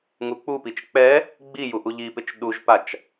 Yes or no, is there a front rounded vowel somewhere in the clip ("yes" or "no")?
no